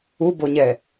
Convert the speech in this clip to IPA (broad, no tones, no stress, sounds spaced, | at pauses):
u b o ɲ ɛː